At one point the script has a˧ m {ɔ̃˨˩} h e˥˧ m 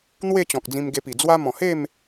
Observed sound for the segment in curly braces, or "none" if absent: ɔ̃˨˩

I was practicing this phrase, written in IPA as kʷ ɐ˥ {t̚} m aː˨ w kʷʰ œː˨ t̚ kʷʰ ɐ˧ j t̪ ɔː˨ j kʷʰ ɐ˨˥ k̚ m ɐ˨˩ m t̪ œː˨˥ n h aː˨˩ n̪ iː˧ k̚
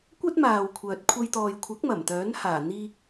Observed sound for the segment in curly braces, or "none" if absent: t̚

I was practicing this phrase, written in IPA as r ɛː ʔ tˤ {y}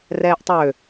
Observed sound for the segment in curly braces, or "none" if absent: ø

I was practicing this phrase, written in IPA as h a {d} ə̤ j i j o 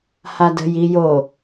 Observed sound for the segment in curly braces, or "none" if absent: d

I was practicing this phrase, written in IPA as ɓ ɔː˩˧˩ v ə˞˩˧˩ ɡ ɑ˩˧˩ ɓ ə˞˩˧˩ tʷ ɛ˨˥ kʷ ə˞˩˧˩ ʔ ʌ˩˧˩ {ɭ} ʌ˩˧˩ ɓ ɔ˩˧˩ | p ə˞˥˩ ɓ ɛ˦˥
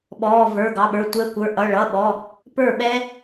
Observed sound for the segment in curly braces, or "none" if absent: ɭ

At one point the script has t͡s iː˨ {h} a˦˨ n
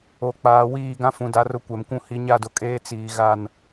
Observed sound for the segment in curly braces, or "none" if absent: ɣ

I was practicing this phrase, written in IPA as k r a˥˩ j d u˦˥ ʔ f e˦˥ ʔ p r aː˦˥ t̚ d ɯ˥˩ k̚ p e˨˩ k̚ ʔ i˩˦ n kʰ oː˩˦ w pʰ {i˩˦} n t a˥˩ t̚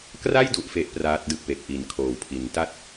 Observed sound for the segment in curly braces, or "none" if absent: i˩˦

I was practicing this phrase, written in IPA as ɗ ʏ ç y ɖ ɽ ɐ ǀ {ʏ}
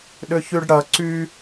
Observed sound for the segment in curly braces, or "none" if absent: y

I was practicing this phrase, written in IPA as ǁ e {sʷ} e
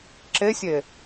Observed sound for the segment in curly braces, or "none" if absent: sʲ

